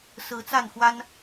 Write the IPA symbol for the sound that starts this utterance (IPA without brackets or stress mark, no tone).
s